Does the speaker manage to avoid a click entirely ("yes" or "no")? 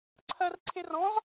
no